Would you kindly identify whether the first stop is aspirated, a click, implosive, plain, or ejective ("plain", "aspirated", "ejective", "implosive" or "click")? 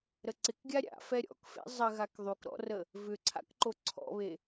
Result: click